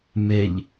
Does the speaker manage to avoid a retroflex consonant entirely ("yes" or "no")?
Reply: yes